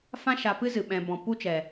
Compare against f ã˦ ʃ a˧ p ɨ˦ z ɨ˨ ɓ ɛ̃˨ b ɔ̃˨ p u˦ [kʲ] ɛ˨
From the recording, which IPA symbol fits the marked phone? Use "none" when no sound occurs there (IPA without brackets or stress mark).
t͡ʃ